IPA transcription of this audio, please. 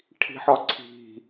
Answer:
ʈʰi̤ħɒǀʰi̤

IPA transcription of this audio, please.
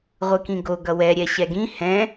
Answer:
ʁʷɯkĩɡo ɡʌwɛ ɾʲɛɕɛɡĩ hɛ̃

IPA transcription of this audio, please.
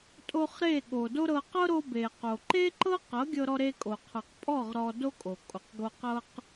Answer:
tʼo˧χɾe˦˨ɠo˨ do˦ɾɤ˧ qɤ˦ɾo˧ be˨qo˨ ǃe˦ǃɤ˦ qɤ˨˦ ɡʲɤ˧ɾɔ˧ɾe˧kʼo˨ qʰɤ˨qpʼɔ˦˨ʁ ɾɔ˧do˦kʼo˨ kʼo˨qɡo˧qɤ˦q

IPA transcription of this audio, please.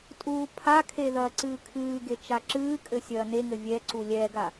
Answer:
tʼuːpʰakʰe ðɐːǀɨːkʰɨːɡe t͡ʃaǁɨːkʼɘ sʲɐːneŋɘ vʲɛǀu lʲɛɡa

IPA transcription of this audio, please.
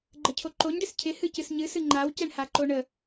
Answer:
ɡ͡ǃəcʰoǃoɲɖɪs cʰɪhɨ cɨsɲɨsɨ ŋ͡ǃawcɛɳhaǃo ɳə

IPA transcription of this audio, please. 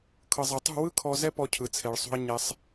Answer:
kʰɤ˧zˤa˧ tˤṳ˦˨wɯ˦ kʰɔ˧zɛ˦ pɔ˧cʰɯ˨t͡sʰe˨ɭsˤṳ˧ɐ̯ ɲɛ˧sˤ

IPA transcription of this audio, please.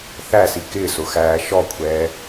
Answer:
θæsi kɪːsʊxæː ʃɔkʷʰɛː

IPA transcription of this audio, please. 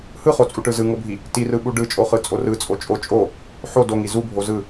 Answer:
hɯχot͡sʼuʈɯ zɯŋobʱi | tirɯɓu ɖɯt͡ʃʼoχɯt͡sʼo rɯt͡sʼo t͡ʃʼo t͡ʃʼo | ħo doŋi zubʱo zɯ

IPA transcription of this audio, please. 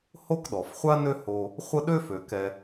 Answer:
ho˥kɗɔ˩fχʷa˥nø˦ ho˨ | χʷə˦ɗø˥fø˩ kɛ˨

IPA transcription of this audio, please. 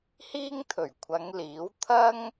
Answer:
hiː˥ŋt̪ʰɵ˨˩ɥkʷʰɐ˨˧ŋ liː˨˥w t̪ʰɐ˥ŋ

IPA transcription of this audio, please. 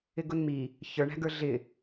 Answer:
ɪɡʊnmi | çə˞ɳæ̤ɡə˞ ɮɪ

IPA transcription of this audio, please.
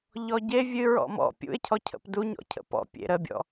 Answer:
ʎɔɟe vʲɨ ɹɔ̰mɔ̰ pʲṵe̯cʰɔcʰə̰p duɲɔ̰ cʰə̰pɔ̰ pʲḛɾəbʲɔ̰

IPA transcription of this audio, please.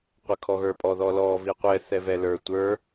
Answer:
qʷəkʰɔɣə˞pʼɔ ðɔlɔ viqʷɛ θɛvɛlə˞ tʷə˞

